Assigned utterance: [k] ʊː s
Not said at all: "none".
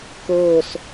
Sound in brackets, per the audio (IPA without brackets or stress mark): k